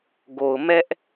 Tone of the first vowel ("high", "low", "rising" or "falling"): low